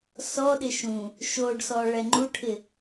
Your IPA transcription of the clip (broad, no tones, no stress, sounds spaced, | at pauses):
s ɔ ɗ ɪ ʃ ũ | ʃ o ɖ s ɔ ɭ ɛ ŋ͡ǃ u ʈʰ ɪ